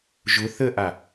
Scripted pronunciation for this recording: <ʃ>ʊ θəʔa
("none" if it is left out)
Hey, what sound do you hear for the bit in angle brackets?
ʒ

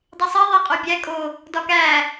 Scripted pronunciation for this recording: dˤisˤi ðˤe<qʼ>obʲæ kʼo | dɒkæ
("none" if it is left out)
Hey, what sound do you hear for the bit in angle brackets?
qʼ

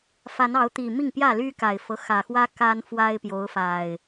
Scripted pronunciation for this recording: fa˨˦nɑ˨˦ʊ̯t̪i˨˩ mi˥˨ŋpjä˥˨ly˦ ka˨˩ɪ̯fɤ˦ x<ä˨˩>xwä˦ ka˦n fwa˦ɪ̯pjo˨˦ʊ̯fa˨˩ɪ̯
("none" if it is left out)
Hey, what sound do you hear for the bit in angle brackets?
ä˨˩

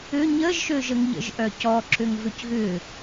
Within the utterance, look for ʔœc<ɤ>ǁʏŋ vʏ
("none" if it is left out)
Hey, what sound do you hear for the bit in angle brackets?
ɔ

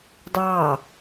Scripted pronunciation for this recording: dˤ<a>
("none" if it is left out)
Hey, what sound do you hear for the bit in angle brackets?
ɑ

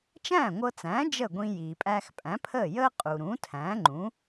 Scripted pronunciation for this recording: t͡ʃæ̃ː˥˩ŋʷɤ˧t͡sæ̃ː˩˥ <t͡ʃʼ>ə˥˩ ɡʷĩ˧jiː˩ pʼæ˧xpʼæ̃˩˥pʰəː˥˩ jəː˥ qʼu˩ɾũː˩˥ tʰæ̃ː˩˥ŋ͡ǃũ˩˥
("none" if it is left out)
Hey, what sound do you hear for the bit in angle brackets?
d͡ʒ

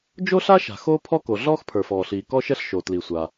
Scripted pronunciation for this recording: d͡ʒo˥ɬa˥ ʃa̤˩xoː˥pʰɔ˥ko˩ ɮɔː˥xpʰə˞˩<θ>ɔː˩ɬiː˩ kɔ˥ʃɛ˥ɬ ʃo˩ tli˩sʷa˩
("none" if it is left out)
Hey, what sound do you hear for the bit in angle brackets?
f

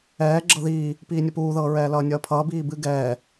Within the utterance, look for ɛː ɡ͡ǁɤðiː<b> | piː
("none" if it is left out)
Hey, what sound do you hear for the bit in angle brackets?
none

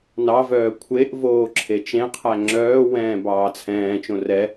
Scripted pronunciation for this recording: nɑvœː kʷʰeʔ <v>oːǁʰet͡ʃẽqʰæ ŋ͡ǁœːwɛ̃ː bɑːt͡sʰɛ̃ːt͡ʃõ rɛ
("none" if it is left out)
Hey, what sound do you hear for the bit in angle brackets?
v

